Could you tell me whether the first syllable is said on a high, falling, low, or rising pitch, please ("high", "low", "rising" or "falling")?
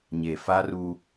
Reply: low